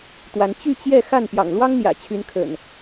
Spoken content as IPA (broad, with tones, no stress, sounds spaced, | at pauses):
t̪ w a˨˦ n t͡ɕ y˥˨ t͡ɕ j ɛ˥˨ x a˥˨ n p j ɑ̰˨˩ ŋ l w ɑ˦ ŋ n̪ j ä̰˨˩ t͡ɕʰ y˨˦ n kʰ ə̰˨˩ n